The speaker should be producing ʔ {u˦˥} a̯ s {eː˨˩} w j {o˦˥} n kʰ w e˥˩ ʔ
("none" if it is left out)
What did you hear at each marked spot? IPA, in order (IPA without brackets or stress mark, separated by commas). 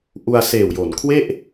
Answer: u˧, eː˨˩, o˩˦